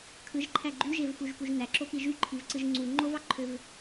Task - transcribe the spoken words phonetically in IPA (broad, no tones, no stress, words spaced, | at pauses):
kʰɯʒǃʰæ ɡ͡ǃyʒevfuʒpuʒ næǁopi ʒyǃʰivǀɯʒ ŋ͡ǀu ŋ͡ǃovɑǃʰøv